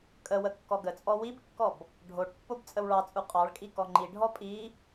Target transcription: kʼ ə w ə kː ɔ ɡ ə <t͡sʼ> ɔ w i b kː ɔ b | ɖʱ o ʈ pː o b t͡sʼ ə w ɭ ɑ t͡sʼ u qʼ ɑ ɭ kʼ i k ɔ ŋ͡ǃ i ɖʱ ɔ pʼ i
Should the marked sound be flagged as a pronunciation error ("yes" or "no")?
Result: no